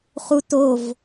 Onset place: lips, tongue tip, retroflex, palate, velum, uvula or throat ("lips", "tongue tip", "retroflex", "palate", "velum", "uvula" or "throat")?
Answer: uvula